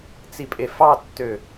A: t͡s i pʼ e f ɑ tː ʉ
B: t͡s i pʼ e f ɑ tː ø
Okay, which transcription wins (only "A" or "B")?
B